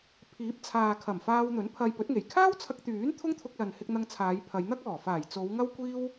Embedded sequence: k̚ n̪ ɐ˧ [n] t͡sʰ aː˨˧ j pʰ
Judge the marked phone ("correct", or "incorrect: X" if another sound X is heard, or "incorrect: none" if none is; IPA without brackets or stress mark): incorrect: ŋ